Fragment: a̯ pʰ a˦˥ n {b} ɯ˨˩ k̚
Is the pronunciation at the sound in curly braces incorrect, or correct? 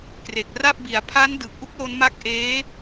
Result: incorrect